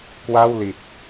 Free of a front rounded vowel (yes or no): yes